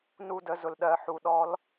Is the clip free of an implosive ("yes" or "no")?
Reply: no